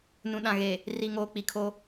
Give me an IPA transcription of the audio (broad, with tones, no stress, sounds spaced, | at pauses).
n ũ˨ ɗ ã˨ ɣ e˨ | r i˨ ŋ oː˨ k͡p i˨ kʰ o˦